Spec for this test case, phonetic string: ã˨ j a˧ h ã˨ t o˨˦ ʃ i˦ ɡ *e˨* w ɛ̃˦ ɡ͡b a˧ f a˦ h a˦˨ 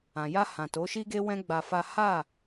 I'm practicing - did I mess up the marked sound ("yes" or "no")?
yes